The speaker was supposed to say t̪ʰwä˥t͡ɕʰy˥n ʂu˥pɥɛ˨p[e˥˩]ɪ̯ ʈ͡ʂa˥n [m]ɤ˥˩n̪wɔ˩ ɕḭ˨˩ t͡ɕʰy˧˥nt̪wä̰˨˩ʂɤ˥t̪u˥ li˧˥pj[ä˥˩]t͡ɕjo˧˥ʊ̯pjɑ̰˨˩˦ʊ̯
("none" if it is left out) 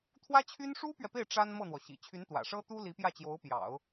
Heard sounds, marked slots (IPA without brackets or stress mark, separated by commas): e˥˩, m, ä˥˩